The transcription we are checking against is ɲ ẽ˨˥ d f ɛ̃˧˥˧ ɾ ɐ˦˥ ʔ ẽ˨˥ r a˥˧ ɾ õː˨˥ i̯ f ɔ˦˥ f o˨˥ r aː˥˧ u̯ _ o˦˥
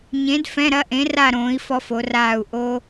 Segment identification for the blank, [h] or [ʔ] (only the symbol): ʔ